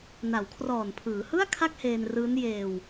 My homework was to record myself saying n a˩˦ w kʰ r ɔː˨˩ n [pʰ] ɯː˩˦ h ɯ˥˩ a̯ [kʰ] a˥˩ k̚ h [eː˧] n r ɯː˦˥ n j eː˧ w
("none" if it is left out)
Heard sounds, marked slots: pʰ, kʰ, eː˧

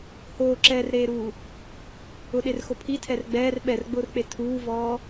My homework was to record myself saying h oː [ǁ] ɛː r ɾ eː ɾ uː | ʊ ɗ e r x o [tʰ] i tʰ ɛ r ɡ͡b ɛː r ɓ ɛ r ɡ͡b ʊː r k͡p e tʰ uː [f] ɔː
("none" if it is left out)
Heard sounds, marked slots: ǁ, pʰ, v

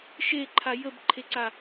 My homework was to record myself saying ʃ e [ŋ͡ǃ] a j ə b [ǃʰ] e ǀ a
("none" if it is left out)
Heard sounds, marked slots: ǃʰ, ǃʰ

